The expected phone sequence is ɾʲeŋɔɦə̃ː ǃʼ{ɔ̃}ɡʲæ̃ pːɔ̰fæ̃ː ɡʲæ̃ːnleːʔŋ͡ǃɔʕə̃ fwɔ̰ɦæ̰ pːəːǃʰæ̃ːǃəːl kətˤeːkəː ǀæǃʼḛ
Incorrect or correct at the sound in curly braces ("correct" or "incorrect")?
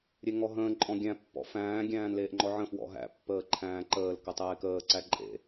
correct